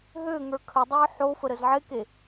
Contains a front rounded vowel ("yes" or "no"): yes